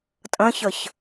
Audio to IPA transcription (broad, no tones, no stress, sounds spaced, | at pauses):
tʼ ə̃ ç ə ç